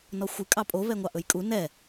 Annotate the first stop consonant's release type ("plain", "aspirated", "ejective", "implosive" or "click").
ejective